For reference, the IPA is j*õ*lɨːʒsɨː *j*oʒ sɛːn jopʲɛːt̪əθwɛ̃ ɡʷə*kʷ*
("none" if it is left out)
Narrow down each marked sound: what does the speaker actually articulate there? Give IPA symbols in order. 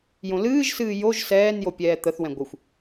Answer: õ, j, xʷ

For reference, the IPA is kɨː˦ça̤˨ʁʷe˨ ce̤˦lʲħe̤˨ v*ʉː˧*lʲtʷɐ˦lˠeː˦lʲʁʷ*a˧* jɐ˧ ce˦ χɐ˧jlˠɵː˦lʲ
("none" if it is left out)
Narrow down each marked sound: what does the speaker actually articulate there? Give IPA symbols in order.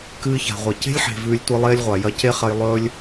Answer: ʉː˧, a˨

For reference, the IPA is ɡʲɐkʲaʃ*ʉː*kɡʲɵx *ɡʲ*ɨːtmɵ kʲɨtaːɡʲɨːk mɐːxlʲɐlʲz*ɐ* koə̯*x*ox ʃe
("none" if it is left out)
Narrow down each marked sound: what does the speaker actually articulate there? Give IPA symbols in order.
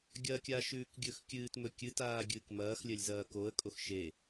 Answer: ʉː, kʲ, ɐː, kʼ

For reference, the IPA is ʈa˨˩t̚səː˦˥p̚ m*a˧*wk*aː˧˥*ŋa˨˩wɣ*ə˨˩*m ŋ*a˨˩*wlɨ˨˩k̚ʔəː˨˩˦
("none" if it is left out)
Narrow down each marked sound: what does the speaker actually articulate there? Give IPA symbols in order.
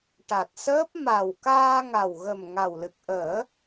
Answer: a˨˩, aː˧, ə˨˩, a˨˩

